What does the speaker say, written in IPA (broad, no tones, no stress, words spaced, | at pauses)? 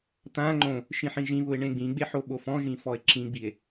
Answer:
t̪ã ŋ͡ǃõ | ʃĩħĩʒĩβʊe̯ ɳẽɡ͡bĩɡ͡be ħoɓofɔ̃ʒĩ fɔe̯ǁĩɡ͡bie̯